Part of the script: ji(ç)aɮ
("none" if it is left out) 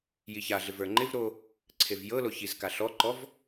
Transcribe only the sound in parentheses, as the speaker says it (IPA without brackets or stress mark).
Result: ç